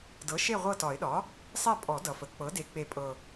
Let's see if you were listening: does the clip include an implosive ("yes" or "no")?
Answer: yes